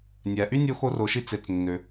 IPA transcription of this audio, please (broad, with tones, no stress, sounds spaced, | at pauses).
nʲ æ˩ ʔ y˥ nʲ o˥ x o˥ r o˩ ʃ i˥ t͡s e˩ t͡s nː ø˩